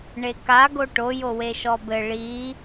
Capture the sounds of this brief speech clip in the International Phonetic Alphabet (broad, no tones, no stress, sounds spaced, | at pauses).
ɳ e k a ɡ o ʈ o j o w e ʃ ɔ b ɘ ɭ i